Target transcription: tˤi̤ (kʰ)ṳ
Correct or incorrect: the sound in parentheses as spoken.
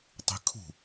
correct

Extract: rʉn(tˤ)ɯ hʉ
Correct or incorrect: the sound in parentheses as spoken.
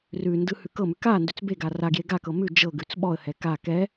incorrect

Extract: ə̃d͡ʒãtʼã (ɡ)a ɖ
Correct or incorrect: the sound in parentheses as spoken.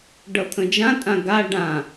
correct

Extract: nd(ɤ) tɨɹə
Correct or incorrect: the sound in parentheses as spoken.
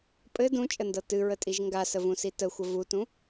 correct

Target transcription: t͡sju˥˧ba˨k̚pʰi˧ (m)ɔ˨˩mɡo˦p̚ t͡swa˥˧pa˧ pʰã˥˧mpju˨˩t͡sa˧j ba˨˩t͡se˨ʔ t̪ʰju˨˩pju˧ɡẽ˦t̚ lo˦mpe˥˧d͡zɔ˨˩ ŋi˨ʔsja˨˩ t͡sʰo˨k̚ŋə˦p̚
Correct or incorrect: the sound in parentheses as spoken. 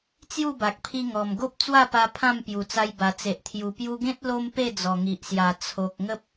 incorrect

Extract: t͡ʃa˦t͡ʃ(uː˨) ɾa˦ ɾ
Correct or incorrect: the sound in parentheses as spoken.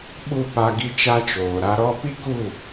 incorrect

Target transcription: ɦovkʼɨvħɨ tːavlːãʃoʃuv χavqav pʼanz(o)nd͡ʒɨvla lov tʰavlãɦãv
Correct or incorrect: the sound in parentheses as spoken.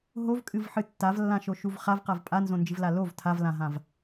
incorrect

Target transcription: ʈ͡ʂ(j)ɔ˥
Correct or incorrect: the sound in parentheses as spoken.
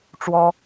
incorrect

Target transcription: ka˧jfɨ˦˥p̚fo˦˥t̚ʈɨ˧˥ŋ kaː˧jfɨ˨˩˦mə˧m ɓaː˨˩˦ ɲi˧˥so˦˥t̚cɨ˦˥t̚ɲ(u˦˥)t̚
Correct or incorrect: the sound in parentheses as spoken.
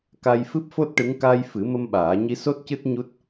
correct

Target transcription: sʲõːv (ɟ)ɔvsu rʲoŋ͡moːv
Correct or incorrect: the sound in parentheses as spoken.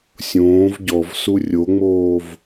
correct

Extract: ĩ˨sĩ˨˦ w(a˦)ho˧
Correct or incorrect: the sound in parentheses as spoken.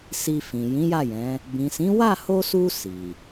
incorrect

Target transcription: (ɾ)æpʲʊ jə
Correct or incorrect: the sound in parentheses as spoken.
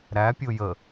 correct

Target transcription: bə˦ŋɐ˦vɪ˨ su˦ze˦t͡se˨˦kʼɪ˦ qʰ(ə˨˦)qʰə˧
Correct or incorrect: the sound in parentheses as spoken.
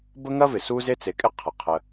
incorrect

